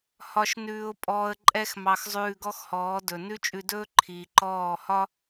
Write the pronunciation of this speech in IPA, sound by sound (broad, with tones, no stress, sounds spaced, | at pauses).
h ɒ˧ ʃ n ʉː˧ ʊ̯ pʼ ɔː˧ ə̯ ǃʼ ɛ˦ x m ɑ˧ x zˤ ʉː˧ ɡ ɔ˦ x h ɔː˨˦ d ɵ˨ n ʉ˦ t͡ʃʼ ʉ˧ d ɵː˦ ǃʰ iː˨ ǃ ɔː˦˨ h ɒ˦